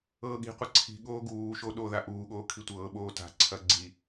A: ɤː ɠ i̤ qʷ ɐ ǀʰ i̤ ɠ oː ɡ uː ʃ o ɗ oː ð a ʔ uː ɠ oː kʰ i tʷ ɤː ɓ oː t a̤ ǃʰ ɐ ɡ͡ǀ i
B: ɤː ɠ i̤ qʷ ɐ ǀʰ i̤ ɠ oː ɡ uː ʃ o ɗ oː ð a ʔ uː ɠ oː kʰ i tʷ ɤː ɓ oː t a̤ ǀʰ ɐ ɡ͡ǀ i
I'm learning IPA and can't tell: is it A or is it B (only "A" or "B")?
B